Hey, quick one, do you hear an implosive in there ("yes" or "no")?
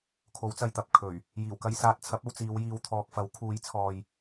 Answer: no